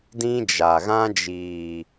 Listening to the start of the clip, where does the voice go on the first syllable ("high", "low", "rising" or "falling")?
high